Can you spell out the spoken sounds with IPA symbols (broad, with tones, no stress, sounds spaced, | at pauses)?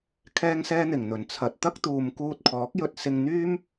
kʰ ɛː˥ ŋ s ɛː˥ n̪ ɪ˨˩ ŋ n̪ ɵ˨˩ n t͡sʰ ɐ˨ t̚ t̪ ɐ˥ k̚ t̪ uː˨ m k uː˧ t̚ kʰ ɔː˨˥ k̚ j ɵ˧ t̚ s ɪ˧ ŋ n̪ yː˥ m